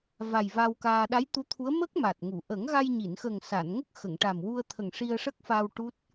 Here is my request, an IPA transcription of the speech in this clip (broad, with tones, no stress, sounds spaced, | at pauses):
v a˨˩ j v a˧ w k aː˧ ɗ a˧˥ j t̪ u˧˥ t̪ʰ u˧˥ ə̯ m ə˦˥ k̚ m a˨˩ t̚ ŋ u˨˩˨ ʔ ə˨˩˦ ŋ ɣ a˧ j ɲ i˨˩˨ n x ə˨˩ ŋ s a˨˩˨ n ŋ ə˦˥ k̚ x ə˨˩˨ ŋ ʈ a˨˩ m w u˧ ə̯ t̪ʰ ə˨˩ ŋ ʂ i˧ ə̯ ʂ ə˦˥ k̚ f aː˧ w ʈ u˦˥ t̚